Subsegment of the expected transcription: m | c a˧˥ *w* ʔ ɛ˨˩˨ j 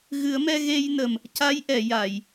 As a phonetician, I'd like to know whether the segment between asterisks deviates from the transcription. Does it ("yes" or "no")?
yes